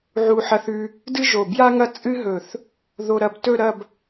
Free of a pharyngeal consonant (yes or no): no